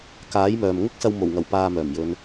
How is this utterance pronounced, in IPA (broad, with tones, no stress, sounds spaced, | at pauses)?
k aː˨˥ j m œː˨ m ŋ ʊ˥ k̚ s ɐ˧ w m o˨˩ w ŋ ɐ˨˩ w p aː˧ m œː˨˩ m j ɵ˨˧ n